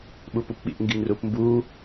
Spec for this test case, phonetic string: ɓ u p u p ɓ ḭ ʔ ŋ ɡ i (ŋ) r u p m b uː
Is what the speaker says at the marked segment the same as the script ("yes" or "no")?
yes